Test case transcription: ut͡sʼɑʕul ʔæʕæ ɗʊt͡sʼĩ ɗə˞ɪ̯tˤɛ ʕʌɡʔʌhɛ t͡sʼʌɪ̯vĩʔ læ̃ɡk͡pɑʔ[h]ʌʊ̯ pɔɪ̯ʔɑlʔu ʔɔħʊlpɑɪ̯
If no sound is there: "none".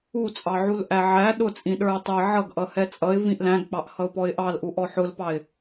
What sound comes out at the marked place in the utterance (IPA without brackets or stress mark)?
h